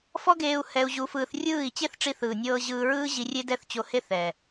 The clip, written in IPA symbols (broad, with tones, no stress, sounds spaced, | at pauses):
f ɔ˦ ɡ eː˧ u̯ h ɛ˧ u̯ ʑ u˧ f ɯː˧ θ rʲ ɯː˦˨ i̯ t͡ɕ e˦ θ ʈ͡ʂ i˧ θ ɯː˨ nʲ ɤː˧ ʑ ɯː˧ ɹ ɯː˦ ʑ i˧ rʲ e˦ d ɛ˦˨ θ t͡ɕ o˧ h e˦ θ ɛ˨